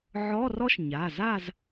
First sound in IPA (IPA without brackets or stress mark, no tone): ʕ